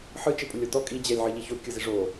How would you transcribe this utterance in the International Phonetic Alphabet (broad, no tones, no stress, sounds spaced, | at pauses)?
ħ ɯ t͡ʃ e pʼ u lʲ o t ɔ kʼ i d͡ʑ ɛ lʲ ʕ ɯ ʎ i ç o kʲ ɯ z i ʐ o